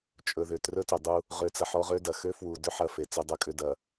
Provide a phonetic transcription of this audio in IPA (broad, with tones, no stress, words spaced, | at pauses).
t͡ʃʼɵ˨ ðʏ˨ trɵ˦tʏ˨ dˤu˦ | ʁø˨t͡sɐ˨ ħɔ˦ʁø˦dɐ˨ xø˦fwu˨dʏ˦ ħɐ˨ fe˨t͡sɵ˦dˤɵ˦kʼʏ˦ dɐ˨